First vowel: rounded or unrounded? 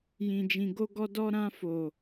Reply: unrounded